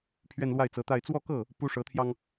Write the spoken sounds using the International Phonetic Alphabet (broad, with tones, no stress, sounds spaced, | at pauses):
pʰ ɥ ɛ˥˧ n l w a˥˩ ɪ̯ t͡s ɤ˧˥ t̪ a˥˧ ɪ̯ t͡s w ɔ˥˧ k ɤ˥˩ | p u˥ ʂ ɤ˧˥ t̪ʰ j ɑ˧ ŋ